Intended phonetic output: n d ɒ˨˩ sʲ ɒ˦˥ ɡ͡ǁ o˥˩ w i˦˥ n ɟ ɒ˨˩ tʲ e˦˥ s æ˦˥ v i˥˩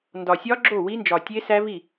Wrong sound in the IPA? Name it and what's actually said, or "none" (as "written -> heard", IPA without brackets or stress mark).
ɟ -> d͡ʒ